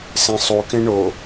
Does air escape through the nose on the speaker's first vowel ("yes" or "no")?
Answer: yes